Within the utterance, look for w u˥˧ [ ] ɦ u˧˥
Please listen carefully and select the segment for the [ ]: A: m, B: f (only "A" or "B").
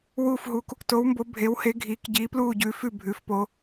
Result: B